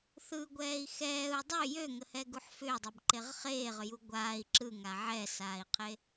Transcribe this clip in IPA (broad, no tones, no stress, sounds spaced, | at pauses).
θ ɯ ɡʷ ɛː i̯ x ɛː u̯ dˤ ø j ø ŋ ə h ɛ ɡ u ħ f ʏː dˤ e b ǃ e ʁ χ eː ʁ ʏ j u ɡʷ aː i̯ ǁ ɯ ŋ a ʕ ɛ s aː i̯ qʰ e